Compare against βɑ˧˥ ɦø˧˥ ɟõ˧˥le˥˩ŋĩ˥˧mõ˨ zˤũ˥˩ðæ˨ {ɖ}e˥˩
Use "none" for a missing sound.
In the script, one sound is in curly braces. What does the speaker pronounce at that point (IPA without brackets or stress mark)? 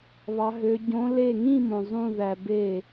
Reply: b